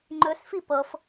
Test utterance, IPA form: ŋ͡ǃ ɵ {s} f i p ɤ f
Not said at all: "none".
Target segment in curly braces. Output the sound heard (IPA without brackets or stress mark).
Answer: s